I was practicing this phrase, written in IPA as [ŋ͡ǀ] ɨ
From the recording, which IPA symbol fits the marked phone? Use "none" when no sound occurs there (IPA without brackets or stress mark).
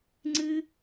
ŋ͡ǀ